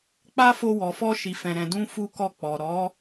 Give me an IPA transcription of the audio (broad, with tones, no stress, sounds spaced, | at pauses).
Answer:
k͡p a˦ f o˧ w ɔ˨ f ɔ˧ ʃ i˨ f ɛ̃˨ ɾ ɛ̃˨ d ũ˧ f u˦ k ɔ˦˨ k͡p ɔ˨ ɾ ɔ˨˦